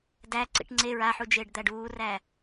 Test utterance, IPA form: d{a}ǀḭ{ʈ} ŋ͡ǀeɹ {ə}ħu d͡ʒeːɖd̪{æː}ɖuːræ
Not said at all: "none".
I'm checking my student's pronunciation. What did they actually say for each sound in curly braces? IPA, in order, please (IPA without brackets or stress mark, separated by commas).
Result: æ, ʈ, a, æ